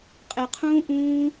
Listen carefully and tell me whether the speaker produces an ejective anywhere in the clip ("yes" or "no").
yes